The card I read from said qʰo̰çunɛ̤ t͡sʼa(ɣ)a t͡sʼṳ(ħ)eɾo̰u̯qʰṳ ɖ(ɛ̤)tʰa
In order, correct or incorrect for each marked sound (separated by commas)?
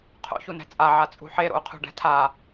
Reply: incorrect, correct, correct